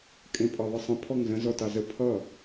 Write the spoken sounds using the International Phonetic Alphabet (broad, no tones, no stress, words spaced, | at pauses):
kʼẽpʼɑðˤəsˤə̃ pʰɔŋzə̃ zɔtɑzə pʰʌ